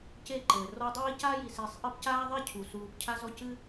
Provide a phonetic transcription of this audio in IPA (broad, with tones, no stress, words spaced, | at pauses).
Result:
ce˦ǃɘː˩ rɔ˦dˤiː˥ caː˥ji˨se˨sˤʔɘ˦p caː˥ðˤɛ˥cʰu˩ suː˨p cʰa˦zɔ˦ cɨ˦